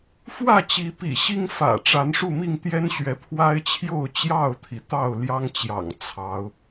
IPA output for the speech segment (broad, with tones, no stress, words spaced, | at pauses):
fwä˥˨t͡ɕi˨˦ pḭ˨˩ɕi˦ŋ fä̰˨˩ʈ͡ʂa˨˦nʂu˥˨mi˥˨ŋ t̪jɛ˦nɕɥɛ˨˦ pʰwa˦ɪ̯t͡ɕʰjo˥˨ʊ̯ t͡ɕjɑ˥˨ʊ̯t̪ʰi˩t̪ɑ˥˨ʊ̯ljɑ˦ŋ t͡ɕjɑ̰˨˩ŋt͡sʰɑ˨˦ʊ̯